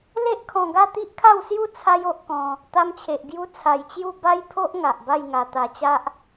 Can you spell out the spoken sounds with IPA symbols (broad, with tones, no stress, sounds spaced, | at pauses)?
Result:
l e˦ ʔ kʰ ɔ̃˧ ɡ a˥˧ t̪ i˦ ʔ kʰ a˥˧ w s j u˥˧ t͡sʰ a˦ j o˦ ʔ k ɔ̃˧ | t̪ a˧ m t͡ɕʰ e˨ ʔ ɡ j u˧ t͡sʰ a˧ j t͡ɕ j u˥˧ b a˦ j pʰ o˦ ʔ ŋ a˨ ʔ b a˥˧ j ŋ a˧ t̪ a˧ t͡ɕ a˦ ʔ